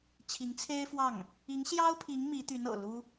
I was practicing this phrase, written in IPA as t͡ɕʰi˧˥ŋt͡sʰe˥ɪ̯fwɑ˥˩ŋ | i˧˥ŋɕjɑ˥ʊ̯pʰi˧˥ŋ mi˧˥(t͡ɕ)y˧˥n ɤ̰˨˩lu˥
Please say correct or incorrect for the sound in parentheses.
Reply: incorrect